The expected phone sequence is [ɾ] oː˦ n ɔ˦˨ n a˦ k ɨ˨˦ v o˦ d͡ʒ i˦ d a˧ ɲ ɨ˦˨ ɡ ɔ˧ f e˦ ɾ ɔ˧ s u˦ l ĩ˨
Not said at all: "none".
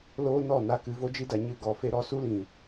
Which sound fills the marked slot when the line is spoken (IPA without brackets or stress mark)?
l